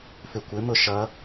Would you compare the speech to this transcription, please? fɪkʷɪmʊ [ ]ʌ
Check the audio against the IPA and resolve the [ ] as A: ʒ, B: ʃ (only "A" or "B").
B